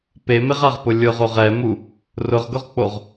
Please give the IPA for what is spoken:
p e m ɪ ʁ a ʁ p ʊ lʲ ʊ ʁ o ʁ ɛ m u | r ʊ ʁ ɡ ʊ ʁ k͡p o ʁ

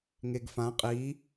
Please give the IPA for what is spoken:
ŋ e ɡ f ã qʼ i

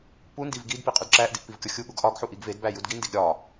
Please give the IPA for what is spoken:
p u n d i v ɡ i d p i qʼ u d ǁ æ ʔ d i ʔ p i v kʲ ɒ xʲ u ɠ u ɡ ʔ ɒ ɡ ħ u ʔ i ɡ v e d b æ j u d ɡ i n d i ɡ ɾʲ ɒ

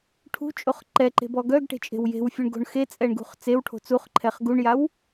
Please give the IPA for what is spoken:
ʈʰ ṳ t͡ʃʼ o χ ǃ ɛ ǃ e̤ b ɔ ɡ œ ɡ ʈ e̤ t͡ʃʼ e̤ w j e̤ w fʲ u ɳ ɡ o̤ ɳ x e t͡sʼ ɛ ɳ ɡ ṳ χ t͡s e w ʈʰ o̤ t͡s u χ ǃʰ ɛ χ ɡ u ɳ j a w

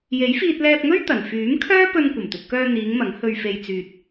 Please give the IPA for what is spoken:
j e˨˥ j f iː˧ t̚ l ɛː˧ p̚ ŋ ɵ˥ ɥ t̪ ɐ˨˩ n f yː˨˥ m kʰ œː˥ p ɵ˧ n kʷ ɐ˨˩ m t̪ ɵ˨ t̚ k œː˧ n̪ iː˨˧ ŋ m ɐ˨˥ ŋ h ɵ˧ ɥ f e˧ j t͡s yː˧ t̚

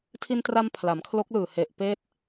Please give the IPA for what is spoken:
tʰ i˧ n t r a˧ m pʰ l a˩˦ m kʰ l o˦˥ k̚ l ɯː˨˩ h e˨˩ ʔ p eː˥˩ t̚

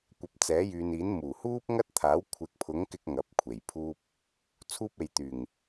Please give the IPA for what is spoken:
kʷ ɐ˨˥ p̚ t͡s ɛː˨˥ j yː˨ n iː˨˥ n m uː˨˩ h uː˥ p̚ ŋ ɐ˥ t̚ t̪ʰ aː˨˥ w kʷʰ ɪ˨˥ k̚ pʰ ʊ˨˥ ŋ k ɪ˧ k̚ ŋ ɐ˨˥ p̚ kʷʰ e˨˩ j pʰ uː˧ p̚ | t͡sʰ uː˥ p̚ e˨ j t̪ yː˨˩ ŋ

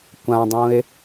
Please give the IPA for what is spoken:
kʷ ã dˤ ũ e̯

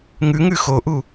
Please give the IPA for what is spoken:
ŋ ʉ ŋ ʉ x o ʔ u

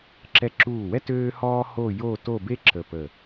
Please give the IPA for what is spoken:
ǁ ɛ˧ ǁ uː˧˩ w ɛ˥ t øː˥ h ɔː˥ h o˥˧ j o˥˧ t o˥˧ b e˥ ǁ ə˧˩ p əː˧˩

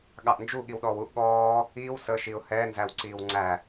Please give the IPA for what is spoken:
ɠ ɑ ʔ n d͡ʒ u ɠ i w ɗ ɔː w u ʔ ɠ ɔː | iː w s əː ʃ i ʊ̯ h ɛː n z æ w ǀ iː w ŋ͡ǀ æ

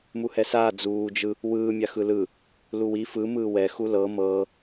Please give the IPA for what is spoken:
m u h ɛ s aː d͡z uː d͡ʒ ɯ | w ɯː mʲ a x ɯ l ɯ | l u w i f ɯ m ɯː w ɛ x u l ɤ m ɤː

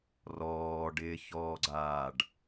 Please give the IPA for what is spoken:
r ɔː ɖ ɪː ç ɔː ɡ͡ǀ aː ɖ

